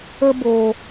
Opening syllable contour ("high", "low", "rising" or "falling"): high